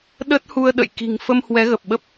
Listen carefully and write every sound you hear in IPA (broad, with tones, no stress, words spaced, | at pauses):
ɗə˦˥t̚hu˧ə̯ɗə̰˧˨j ki̤˨˩ŋfə˧m hwɛ˨˦ɣə˨˩p̚ɓə˦˥p̚